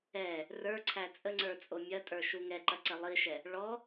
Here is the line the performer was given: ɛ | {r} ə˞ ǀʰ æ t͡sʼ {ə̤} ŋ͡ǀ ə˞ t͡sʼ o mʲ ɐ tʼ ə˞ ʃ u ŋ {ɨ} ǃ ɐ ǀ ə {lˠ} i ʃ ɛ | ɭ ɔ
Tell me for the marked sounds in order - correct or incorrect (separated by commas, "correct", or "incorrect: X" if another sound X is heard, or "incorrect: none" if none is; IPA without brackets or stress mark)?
correct, incorrect: ə, incorrect: ɛ, correct